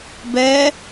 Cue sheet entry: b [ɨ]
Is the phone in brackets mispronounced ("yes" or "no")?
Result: yes